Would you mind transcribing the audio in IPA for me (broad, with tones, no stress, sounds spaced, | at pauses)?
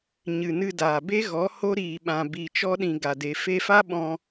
ɲ ɨ˨ n ɨ˧ d aː˨ b e˦ ɣ ɔ˨˦ h o˦ ɾ iː˨ ɓ ã˨ b i˨ t͡ʃ ɔ˧ ɗ ĩ˨ ɡ a˨ d e˨ f e˧ f a˦ ɓ ɔ̃˧